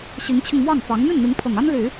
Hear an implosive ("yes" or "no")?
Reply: no